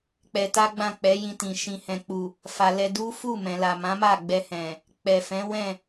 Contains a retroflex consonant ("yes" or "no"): no